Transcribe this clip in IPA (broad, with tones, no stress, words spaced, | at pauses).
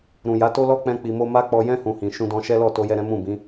ɾũ˨ja˨˦to˦lɔ˦ k͡pɛ̃˧k͡pi˨mo˧ ma˦k͡pɔ˧jɛ̃˦ hũ˧hĩ˨ ʃũ˧dɔ̃˧ʃɛ˦ lɔ˦˨to˧jɛ˧ ɾɛ̃˦mũ˦˨bĩ˨˦